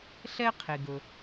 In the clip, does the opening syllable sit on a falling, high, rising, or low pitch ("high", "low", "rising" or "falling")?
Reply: high